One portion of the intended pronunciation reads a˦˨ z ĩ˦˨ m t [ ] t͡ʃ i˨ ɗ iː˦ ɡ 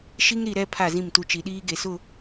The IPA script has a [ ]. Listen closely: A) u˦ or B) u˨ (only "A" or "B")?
A